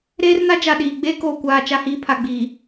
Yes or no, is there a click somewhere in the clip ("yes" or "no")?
no